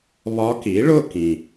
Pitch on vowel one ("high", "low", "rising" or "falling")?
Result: rising